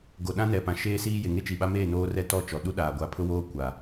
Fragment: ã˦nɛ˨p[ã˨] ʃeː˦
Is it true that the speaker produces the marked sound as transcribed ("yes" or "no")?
yes